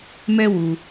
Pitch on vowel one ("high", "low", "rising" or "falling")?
high